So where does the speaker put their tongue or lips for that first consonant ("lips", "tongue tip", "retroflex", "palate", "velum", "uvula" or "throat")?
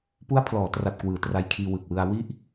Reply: lips